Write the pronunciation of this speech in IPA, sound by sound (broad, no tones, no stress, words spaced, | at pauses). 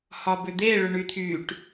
hɒbʏd̪e ɭʏɳyt̪ʰyʈ